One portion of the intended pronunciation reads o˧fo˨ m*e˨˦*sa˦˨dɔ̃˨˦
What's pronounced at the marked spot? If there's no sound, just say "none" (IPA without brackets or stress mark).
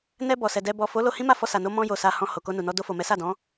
ɛ˨˦